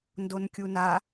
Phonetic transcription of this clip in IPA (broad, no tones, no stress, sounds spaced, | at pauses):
n d o n kʲ u n a